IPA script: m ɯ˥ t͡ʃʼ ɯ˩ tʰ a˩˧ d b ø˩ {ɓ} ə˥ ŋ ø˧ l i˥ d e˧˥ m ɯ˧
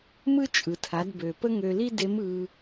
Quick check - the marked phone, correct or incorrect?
incorrect